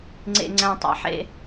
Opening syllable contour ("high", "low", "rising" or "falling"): high